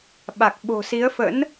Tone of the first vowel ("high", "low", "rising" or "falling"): low